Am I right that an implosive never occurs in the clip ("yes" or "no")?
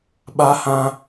no